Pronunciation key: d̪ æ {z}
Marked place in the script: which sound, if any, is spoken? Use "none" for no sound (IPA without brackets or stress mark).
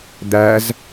z